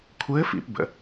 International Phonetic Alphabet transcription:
kʷʰ ɘː˧˥ f ḭ˧ p b ə̰˩˧

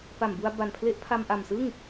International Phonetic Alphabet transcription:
p a˨˩ m b u˧ a̯ b a˨˩ n pʰ l e˦˥ ʔ pʰ a˧ m ʔ a˨˩ m s ɯ˥˩ ŋ

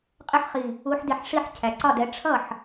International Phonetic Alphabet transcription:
qʼ ɪ˥ ħ χ i˧˩ | u˨˦ ħ d ɪ˧˩ ħ ʂ i˥˩ ħ cʰ æ˩ ǀ ɒ˥˩ d ɛ˨˦ ʈ͡ʂʰ ʌ˥˩ ħ

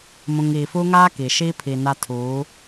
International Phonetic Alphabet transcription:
m ũ˨ ŋ iː˨ f u˦ ŋ aː˦ k i˨ ʃ i˦ pʰ i˨ n a˦ tʰ uː˨˦

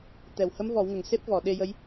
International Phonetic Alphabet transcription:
t̪ ɛ˨˩ w h ə˧˥ m v ɔ˨˩˦ w ŋ ə˨˩ ŋ s e˦˥ p̚ v ɔ˨˩˨ ɗ e˧ j ə˧˥ j

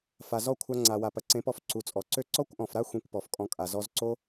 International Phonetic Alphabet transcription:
f a˨ z ɔ˦˨ kʷʰ a˧ ŋ͡ǀ a˨ w a˨ p ɐ˨ ǀ ẽ˨˦ p ɔ˧ f ǀ u˨ t͡sʼ ɔ˨ ǀ ø˦ ǀ ɔ˦ kʷ ʔ ɔ̃˨ f ɾ a˦ xʷ ĩ˧ kʷ p ɔ˨ f kʼ ɔ̃˧ kʼ a˨ z ɔ˧ z ǀ o˦

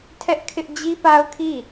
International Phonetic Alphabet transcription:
tʰ ɛ˦ ʔ kʰ ɪ˦ ʔ d͡ʑ i˦ p a˦ ʊ̯ kʰ i˦˨

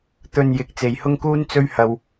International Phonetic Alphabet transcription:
t̪ ɵ˧ n j ɪ˨˥ k̚ t͡s e˨ j h ʊ˥ ŋ k uː˥ n t͡s ɵ˥ ɥ h ɐ˨ w

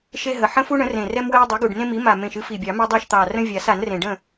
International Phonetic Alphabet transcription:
ʃ e˦ ɦ ə˨˩ ħ ə̃˦ f u˦ ɳ ə̃˩˥ r ẽ˨˩ r ɛ˦ m w ɛ˦ ə̯ dˤ ɨ˩˥ ɡ u˨˩ ɖ n ẽ˦ m i˩˥ m a˨˩ m ẽ˨˩ ʃ ɨ˦ f i˨˩ bʲ ɑ˨˩˦ m ɛ˦ dˤ ɑ˥˨ ʃ t̪ ɑ˨˩ r ə̃˦ vʲ a˨˩˦ s a˨˩˦ n r ẽ˨˩ ɖ ə̃˥˨

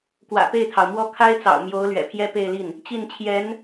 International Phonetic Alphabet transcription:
k w ä̰˨˩ p e˥˩ ɪ̯ t̪ʰ ɑ˩ ʊ̯ m w ɔ˥˩ kʰ a˥ ɪ̯ t͡s ɑ̰˨˩ ʊ̯ m j o˧˥ ʊ̯ l ɥ ɛ̰˨˩ pʰ j ɛ˥ p e˥˧ ɪ̯ l i˥˩ n | t͡ɕ i˥˩ n t͡ɕʰ j ɛ˧˥ n

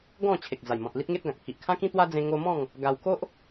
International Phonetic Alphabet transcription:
ɡ ɔ̃˥˧ t͡ɕʰ e˨ k̚ d͡z a˨˩ j m ɔ̃˨ t̚ l i˦ t̚ ŋ e˦ t̚ ɡ ã˨ k̚ pʰ i˨ ʔ kʰ ã˦ k ĩ˦ t̪ w a˦ d͡z ẽ˧ ŋ o˧ m ɔ̃˥˧ ŋ | ɡ a˧ w k o˦ ʔ

